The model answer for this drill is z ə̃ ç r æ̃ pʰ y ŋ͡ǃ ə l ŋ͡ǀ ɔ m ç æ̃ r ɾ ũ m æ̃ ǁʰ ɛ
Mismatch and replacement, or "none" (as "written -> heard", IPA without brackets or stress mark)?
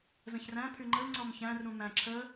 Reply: ɛ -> ə